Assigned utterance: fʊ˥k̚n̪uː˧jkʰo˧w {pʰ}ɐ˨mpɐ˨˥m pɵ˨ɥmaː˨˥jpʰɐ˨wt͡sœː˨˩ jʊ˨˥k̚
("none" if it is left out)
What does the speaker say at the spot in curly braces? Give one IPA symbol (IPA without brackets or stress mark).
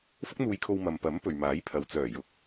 m